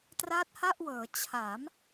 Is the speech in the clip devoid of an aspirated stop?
no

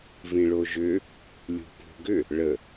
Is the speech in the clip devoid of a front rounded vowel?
no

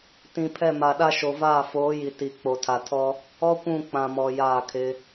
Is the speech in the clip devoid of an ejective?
yes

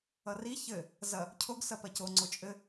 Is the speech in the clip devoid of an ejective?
no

